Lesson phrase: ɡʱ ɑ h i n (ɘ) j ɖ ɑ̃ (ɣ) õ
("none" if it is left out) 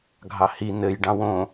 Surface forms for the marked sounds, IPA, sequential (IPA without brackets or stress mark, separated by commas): ɘ, w